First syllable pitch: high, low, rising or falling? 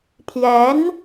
rising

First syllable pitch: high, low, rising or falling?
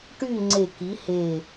falling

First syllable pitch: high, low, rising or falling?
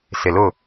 low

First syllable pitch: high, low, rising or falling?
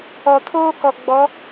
low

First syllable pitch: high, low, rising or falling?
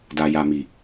low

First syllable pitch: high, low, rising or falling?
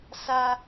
low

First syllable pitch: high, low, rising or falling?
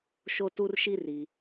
high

